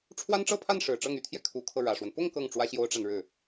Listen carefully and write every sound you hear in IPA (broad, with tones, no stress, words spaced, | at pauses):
ʈ͡ʂʰwa˥nʈ͡ʂɤ˥˧pʰa˥˩n ʂɻ̩˨˩ʈ͡ʂɤ˥˩ŋ y˧˥t̪ʰjɛ˧ kʰu˧˥kʰɤ˧ ɻä˨˩ʂwə˦n pʊ˥˧ŋ kɤ˥˩ŋʈ͡ʂwä˥ɕjo˥ʊ̯ʈ͡ʂa˨n ɻɻ̩˥˩